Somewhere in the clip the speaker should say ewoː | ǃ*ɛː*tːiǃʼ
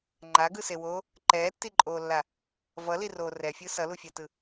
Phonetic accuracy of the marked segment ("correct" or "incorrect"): correct